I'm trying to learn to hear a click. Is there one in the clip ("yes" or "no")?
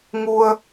no